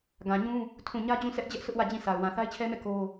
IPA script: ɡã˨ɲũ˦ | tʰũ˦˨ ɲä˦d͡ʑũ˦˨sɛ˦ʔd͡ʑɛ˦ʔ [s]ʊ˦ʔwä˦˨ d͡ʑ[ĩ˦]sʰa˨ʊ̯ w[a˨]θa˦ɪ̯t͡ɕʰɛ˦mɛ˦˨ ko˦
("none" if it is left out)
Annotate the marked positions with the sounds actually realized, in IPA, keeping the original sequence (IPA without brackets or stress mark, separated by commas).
s, ĩ˦˨, ã˨